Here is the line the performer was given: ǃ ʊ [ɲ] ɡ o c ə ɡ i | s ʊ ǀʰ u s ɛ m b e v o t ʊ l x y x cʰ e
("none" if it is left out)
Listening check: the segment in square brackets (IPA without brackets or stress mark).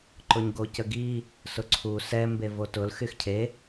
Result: ɲ